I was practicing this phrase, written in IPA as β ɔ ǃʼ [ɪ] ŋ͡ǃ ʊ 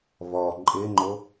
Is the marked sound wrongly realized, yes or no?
no